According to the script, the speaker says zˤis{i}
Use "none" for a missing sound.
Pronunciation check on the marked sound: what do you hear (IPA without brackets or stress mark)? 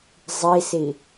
i